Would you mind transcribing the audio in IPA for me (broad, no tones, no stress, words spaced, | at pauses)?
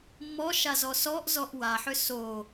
mːɔʃazɔ sɔʔzɔʔ waħʏ so